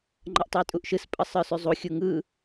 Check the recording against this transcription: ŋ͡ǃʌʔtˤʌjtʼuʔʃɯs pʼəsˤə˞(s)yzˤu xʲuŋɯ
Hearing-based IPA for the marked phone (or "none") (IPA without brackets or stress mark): s